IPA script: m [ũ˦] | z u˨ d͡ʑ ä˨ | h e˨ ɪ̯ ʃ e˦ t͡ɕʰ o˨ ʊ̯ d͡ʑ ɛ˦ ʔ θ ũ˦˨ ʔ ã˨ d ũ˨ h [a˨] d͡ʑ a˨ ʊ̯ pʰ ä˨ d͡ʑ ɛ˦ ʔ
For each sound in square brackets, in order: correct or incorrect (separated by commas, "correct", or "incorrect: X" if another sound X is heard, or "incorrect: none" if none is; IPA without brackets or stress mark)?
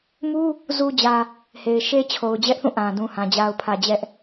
incorrect: u˦, incorrect: ã˨